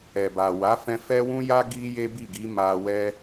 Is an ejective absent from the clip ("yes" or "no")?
yes